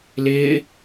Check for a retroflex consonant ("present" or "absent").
absent